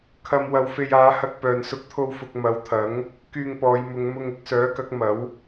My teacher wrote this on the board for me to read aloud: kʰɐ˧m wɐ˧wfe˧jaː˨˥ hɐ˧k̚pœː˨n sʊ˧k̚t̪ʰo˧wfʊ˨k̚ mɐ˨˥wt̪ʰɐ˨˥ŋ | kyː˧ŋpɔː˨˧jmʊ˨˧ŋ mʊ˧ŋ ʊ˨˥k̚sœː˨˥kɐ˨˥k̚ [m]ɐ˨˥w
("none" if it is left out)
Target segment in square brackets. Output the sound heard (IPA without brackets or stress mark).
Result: m